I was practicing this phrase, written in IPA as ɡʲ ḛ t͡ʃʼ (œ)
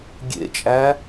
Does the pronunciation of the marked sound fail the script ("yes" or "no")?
yes